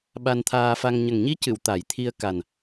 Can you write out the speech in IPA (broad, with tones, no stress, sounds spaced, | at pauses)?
ɓ a˧ n t̪ʰ aː˧ f a˧ ŋ ɲ ə˨˩ ŋ ɲ i˧˥ c ɨ˨˩˨ w t̪ a˨˩˦ j t̪ʰ i˧ ə̯ k a˨˩ n